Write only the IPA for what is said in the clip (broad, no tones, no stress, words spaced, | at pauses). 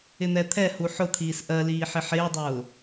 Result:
ɪn̪ɛt̪ʰɛhu ħʊt̪ʰiːs ʔɜliː ħɪħɪːdˤʊː